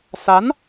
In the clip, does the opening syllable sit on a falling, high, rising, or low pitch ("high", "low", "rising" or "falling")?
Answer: rising